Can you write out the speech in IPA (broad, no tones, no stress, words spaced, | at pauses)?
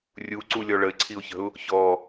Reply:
rʲuǀulʲɔ ɭəɪ̯ǀʰiʊ̯çə̤ʊ̯ | çɔ